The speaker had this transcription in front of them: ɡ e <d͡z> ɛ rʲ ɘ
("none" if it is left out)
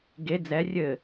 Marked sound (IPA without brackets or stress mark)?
d͡z